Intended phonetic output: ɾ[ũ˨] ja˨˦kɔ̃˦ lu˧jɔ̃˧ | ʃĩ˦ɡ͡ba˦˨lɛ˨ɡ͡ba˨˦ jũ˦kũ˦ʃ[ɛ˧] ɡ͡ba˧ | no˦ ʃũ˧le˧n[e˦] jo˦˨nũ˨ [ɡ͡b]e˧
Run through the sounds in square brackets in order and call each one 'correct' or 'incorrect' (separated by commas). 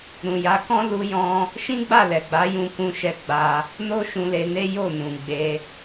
correct, incorrect, correct, correct